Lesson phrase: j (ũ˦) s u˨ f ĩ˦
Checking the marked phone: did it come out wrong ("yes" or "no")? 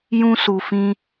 no